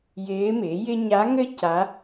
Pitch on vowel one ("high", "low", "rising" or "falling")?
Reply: rising